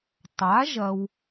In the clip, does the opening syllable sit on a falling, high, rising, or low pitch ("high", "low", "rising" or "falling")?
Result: rising